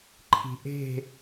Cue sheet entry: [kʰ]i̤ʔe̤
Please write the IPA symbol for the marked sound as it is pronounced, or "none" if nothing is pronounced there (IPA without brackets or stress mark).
ǃʰ